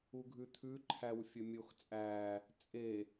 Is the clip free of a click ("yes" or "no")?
no